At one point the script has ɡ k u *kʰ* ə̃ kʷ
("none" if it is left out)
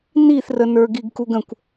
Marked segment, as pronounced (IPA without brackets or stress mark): ɡ